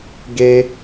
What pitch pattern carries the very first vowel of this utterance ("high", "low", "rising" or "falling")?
high